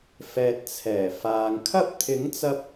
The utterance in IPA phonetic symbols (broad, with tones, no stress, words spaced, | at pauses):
fɛː˨t̚t͡sʰɛː˨˩ faː˨ŋkʰɐ˥p̚ t̪ʰɪ˨˥ŋt͡sɐ˧p̚